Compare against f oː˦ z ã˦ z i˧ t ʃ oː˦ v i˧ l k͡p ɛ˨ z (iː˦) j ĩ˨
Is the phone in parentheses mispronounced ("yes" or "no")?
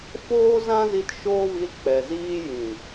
no